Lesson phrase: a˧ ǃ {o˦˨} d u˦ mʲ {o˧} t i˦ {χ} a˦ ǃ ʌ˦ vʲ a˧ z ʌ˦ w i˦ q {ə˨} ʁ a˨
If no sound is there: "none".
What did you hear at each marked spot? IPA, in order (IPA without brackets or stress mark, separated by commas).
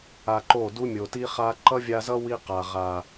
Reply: o˦˨, o˨, χ, a˨